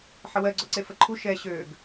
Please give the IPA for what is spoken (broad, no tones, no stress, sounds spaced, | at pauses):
ħ ə w ɜ ɡ͡ǀ ɔ ǀ e f ə ǃʰ u ʃ ɛ ɕ ø ɡ